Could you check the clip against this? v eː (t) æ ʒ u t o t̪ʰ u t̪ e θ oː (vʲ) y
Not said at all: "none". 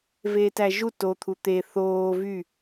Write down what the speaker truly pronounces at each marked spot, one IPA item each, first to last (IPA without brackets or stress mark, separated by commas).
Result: t, v